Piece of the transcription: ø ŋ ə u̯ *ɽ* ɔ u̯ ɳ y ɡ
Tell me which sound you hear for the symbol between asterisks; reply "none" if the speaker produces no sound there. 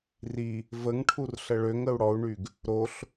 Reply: ɽ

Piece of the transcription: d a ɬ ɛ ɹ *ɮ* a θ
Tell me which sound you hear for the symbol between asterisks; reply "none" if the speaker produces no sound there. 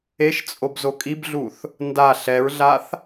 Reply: ɮ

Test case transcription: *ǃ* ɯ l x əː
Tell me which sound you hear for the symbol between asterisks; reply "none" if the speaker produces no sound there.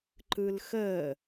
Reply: ǃ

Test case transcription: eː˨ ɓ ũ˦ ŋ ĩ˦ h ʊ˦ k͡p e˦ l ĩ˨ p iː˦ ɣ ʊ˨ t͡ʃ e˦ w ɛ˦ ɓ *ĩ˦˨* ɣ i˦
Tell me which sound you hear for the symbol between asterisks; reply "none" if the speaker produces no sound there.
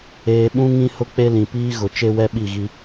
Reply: i˦˨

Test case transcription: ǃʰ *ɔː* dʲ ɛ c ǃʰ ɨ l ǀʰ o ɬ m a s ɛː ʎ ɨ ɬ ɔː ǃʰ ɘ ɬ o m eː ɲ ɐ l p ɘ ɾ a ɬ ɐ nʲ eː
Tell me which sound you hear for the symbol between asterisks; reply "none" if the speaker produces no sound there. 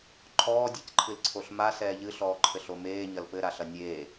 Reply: ɔː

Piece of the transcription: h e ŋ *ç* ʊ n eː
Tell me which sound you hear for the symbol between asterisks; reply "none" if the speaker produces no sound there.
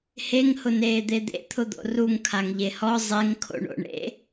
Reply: h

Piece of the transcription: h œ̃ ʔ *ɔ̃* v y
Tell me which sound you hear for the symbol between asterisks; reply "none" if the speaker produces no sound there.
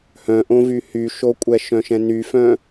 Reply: õ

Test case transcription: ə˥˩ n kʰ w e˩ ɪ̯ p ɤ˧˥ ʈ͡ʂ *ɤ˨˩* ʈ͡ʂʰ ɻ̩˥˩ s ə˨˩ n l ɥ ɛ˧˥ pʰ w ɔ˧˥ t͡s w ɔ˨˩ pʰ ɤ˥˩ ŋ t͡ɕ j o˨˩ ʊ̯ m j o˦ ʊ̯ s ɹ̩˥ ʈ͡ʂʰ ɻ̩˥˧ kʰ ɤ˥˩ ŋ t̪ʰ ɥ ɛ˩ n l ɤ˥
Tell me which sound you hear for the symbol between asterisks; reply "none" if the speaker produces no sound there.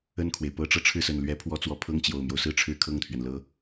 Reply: ɤ˨˩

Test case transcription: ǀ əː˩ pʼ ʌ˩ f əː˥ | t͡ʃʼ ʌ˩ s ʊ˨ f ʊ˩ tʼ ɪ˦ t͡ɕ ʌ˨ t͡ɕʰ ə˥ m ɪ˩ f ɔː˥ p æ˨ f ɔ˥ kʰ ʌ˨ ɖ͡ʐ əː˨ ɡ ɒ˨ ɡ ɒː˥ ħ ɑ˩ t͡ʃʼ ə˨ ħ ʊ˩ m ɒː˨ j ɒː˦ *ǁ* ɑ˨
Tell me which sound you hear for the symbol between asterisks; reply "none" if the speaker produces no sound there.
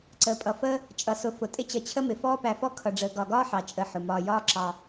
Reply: ǁ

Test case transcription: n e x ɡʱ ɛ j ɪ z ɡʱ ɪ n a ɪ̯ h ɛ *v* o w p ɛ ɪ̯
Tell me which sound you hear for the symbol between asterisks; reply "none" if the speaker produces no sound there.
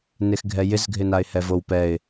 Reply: v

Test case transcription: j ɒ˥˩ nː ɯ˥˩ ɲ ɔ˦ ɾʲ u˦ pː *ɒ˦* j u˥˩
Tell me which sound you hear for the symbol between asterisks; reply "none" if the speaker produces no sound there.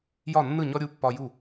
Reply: ɒ˦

